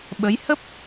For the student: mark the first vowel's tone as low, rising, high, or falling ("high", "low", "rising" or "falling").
rising